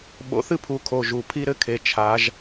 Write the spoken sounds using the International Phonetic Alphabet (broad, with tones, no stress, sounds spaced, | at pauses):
ɓ o̰˨˦ θ ɨ˥ pʰ u˨˦ kʰ o˩˧˩ ʒ u˩˧˩ pʰ i˥ ɾ ɘ˥ kʰ e˨˦ t͡ʃʰ a˨˦ ʒ